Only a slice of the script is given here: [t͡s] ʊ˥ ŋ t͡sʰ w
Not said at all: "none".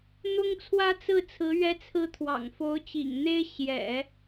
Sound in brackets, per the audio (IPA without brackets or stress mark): n̪